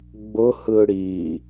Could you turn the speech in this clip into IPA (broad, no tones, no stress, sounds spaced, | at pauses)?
ɡ͡b ʊ h ɯ ɽ i